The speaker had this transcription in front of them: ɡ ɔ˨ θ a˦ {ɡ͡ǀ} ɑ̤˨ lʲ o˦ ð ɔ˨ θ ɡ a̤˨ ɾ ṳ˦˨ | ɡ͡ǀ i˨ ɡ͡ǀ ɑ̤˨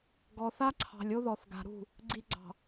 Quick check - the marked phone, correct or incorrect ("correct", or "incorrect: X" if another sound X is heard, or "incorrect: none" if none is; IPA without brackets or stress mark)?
incorrect: ǀʰ